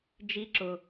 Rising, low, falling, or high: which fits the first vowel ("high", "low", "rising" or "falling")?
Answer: low